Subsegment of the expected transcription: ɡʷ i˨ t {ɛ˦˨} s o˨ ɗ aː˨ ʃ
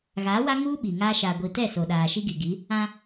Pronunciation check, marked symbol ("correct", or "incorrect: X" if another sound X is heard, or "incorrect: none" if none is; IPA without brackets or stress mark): correct